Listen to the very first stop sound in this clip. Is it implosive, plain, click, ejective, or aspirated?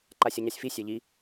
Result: click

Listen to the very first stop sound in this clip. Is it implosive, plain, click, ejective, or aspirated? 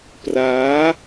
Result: plain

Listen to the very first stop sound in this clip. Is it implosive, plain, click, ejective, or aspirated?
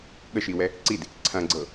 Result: implosive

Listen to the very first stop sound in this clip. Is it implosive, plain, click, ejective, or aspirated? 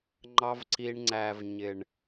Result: click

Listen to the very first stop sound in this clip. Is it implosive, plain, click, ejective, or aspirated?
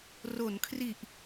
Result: aspirated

